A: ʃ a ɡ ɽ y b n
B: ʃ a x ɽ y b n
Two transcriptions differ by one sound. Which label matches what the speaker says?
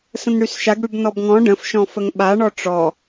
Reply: A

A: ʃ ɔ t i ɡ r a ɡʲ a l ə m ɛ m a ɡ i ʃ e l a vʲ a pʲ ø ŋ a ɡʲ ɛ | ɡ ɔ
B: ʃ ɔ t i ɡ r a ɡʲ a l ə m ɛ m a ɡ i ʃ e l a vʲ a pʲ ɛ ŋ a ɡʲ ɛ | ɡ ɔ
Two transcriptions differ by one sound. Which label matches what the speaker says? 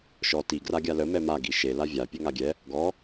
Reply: A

